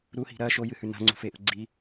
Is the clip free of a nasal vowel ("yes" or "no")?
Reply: yes